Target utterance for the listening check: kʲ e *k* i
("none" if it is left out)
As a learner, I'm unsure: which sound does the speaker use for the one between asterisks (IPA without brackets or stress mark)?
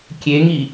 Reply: ŋ